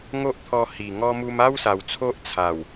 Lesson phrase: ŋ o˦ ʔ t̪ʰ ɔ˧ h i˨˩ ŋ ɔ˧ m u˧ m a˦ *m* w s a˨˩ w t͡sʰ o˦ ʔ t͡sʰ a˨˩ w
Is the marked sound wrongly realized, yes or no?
yes